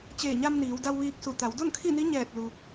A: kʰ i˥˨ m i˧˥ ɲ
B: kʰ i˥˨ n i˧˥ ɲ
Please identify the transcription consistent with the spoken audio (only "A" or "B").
B